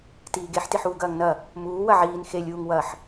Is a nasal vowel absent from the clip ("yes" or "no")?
yes